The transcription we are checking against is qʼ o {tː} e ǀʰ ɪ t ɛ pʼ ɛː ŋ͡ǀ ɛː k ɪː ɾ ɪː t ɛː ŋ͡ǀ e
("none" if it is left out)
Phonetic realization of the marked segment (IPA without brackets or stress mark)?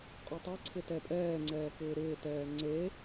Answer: tˤ